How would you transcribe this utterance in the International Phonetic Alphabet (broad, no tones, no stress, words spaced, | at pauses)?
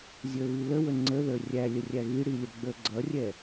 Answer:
zʲə˞βiləwə ŋ͡ǀəðə˞ rʲælʲə rʲæɣiɽi lʲəɡ͡bə˞ɡ͡ǀʌrʲɛ